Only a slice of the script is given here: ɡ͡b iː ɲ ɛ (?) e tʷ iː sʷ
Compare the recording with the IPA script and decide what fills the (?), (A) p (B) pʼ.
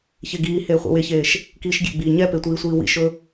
A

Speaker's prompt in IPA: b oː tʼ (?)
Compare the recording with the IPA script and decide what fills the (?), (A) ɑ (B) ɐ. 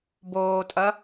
B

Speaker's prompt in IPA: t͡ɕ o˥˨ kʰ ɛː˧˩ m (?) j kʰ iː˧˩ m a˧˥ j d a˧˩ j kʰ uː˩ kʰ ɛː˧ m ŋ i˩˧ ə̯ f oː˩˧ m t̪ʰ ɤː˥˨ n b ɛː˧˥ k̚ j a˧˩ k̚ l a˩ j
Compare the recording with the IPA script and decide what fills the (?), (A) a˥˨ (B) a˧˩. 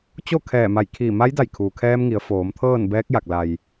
B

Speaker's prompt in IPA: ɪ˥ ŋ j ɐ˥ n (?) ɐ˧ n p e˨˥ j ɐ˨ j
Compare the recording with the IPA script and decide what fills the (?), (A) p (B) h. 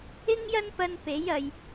A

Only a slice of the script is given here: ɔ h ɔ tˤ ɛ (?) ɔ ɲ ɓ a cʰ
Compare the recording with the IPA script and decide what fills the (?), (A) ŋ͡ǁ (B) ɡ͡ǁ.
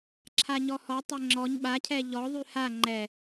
A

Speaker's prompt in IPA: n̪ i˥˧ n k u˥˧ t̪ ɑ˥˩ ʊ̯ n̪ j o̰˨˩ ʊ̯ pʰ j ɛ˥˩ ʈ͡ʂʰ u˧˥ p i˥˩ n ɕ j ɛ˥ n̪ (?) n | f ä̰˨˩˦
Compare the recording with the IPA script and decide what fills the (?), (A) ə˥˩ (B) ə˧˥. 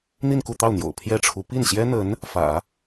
B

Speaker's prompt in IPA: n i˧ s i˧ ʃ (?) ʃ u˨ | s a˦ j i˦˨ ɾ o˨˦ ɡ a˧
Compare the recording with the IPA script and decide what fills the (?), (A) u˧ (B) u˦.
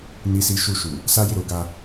A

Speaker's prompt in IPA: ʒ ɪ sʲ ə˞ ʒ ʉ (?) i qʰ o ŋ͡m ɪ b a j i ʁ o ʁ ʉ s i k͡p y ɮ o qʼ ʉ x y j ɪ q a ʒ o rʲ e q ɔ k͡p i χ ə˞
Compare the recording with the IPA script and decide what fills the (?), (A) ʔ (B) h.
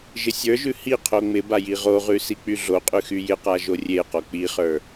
B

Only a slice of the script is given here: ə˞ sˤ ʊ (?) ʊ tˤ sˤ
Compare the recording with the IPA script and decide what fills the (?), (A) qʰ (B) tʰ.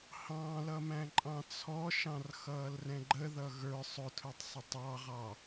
B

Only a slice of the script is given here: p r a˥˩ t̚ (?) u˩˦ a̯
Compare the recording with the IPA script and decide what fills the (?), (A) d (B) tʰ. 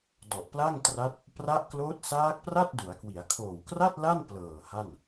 A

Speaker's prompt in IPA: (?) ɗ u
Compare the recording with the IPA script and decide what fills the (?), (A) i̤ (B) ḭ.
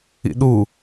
B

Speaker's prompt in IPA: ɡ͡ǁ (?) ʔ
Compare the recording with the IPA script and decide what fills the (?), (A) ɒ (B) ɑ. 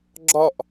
A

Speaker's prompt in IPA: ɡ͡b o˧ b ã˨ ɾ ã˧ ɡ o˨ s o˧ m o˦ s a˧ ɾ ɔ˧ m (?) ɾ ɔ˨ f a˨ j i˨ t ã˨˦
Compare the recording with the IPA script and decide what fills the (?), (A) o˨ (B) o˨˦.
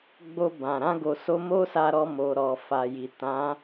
A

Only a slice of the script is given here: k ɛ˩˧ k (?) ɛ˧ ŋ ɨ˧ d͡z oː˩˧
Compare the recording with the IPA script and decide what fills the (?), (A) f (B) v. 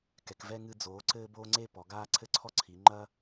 B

